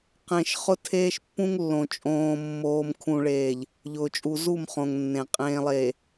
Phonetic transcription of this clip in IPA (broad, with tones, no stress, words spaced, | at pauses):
qẽ˨ʃ χʊ˦tʰeː˦ʃpːũ˦ŋ lːõ˨ t͡ʃʼõː˨mːoː˨m kʰũ˨ɭeː˨ʎ | ʎʊː˨t͡ʃʼu˨zu˦˨mχõ˨ŋ nːẽ˨ qʼẽː˨lˠeː˨